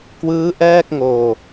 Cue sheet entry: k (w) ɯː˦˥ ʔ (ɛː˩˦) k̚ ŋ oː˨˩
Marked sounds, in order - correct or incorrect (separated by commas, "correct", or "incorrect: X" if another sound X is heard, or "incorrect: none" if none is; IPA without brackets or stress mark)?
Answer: correct, incorrect: ɛː˥˩